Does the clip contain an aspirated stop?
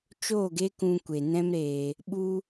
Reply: no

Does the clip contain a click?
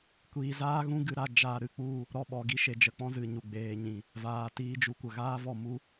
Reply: no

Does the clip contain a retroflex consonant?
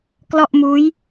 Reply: no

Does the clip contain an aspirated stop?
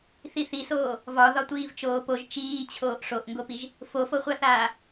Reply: yes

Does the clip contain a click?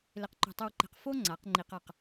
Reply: yes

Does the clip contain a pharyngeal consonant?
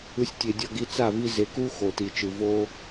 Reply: no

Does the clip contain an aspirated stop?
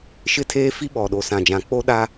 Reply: yes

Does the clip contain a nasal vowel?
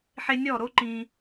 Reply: yes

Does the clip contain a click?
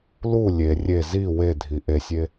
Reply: no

